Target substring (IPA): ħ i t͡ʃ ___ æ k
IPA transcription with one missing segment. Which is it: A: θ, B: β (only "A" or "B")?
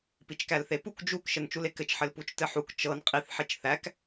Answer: A